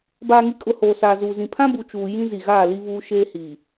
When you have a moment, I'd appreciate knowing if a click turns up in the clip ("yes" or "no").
no